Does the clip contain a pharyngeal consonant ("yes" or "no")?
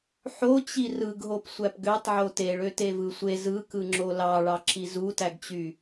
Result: yes